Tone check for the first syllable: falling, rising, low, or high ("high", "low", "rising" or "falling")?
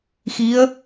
rising